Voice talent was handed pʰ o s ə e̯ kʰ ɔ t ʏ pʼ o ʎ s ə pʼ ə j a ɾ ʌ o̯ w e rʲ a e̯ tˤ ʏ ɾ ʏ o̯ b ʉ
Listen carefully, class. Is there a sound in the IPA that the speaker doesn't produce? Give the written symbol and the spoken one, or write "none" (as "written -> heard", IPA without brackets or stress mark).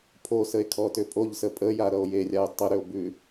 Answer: w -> j